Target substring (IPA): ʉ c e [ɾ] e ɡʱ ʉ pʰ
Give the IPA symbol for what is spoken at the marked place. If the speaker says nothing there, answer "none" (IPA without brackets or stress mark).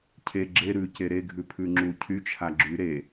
ɾ